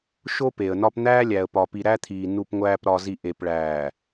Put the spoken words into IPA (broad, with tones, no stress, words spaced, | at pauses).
ʃo˦pe˨ə̯nɒ˦p n̪æː˦lʲæ˨ə̯pɒ˨ pi˨ɾæ˦t̪ʰiː˨ nu˨pŋʷæː˨p ɾɒ˨zi˨ ʔe˨pɭæː˨